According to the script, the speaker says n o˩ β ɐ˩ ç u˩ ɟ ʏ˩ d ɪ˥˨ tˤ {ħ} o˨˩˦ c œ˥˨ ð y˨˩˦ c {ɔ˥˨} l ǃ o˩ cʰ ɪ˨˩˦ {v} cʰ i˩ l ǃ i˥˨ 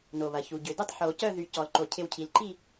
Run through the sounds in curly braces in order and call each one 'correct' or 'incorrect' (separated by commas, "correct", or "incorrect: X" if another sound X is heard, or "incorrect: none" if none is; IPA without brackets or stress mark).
correct, incorrect: ɔ˩, incorrect: w